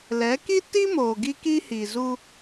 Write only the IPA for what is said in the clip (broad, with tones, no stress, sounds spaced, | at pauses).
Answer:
l ɛ˨˦ k i˦ t i˦ m oː˨ ɡ i˦ k i˦ h i˨ z u˦